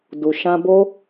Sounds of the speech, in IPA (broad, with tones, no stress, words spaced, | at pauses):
du˨ ʃã˧bo˦